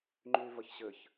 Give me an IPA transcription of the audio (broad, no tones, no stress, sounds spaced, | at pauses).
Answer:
ŋ͡ǃ yː v ɜ ç ɕ ɘ ç